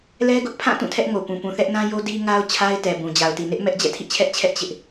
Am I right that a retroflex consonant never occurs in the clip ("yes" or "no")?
yes